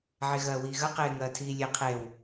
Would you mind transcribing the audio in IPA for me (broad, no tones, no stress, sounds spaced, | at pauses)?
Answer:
ʕ e ɣ ɐː w iː ɣ ɐ q eː ŋ ɐː tʰ iː lʲ e qʰ e w